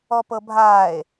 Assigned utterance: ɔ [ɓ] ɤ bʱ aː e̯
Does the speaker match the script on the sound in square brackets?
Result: no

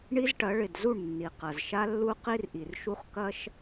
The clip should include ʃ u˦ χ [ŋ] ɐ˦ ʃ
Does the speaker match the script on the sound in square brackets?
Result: no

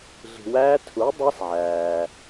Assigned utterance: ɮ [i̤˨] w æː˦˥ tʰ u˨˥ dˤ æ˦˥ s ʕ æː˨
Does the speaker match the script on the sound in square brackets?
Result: yes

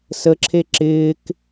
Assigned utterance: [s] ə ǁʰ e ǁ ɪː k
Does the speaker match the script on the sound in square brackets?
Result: yes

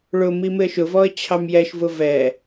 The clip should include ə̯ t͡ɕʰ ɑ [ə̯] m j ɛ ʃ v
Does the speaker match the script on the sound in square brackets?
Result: no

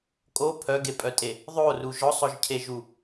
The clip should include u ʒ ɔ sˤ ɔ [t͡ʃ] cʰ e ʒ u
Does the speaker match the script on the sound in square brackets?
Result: no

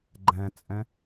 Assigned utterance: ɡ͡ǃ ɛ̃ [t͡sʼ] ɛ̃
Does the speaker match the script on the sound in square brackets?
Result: yes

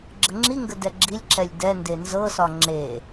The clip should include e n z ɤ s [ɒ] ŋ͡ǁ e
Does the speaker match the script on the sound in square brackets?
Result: yes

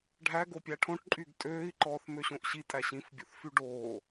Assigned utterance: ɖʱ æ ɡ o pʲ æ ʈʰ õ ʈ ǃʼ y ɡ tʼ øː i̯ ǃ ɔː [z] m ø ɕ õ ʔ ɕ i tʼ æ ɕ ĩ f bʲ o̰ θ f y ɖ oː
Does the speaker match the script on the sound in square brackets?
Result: no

